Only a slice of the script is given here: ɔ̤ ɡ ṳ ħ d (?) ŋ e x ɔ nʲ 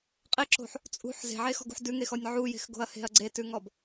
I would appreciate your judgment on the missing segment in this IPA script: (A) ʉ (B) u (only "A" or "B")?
A